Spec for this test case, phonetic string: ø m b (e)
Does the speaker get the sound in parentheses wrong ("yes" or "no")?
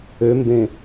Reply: yes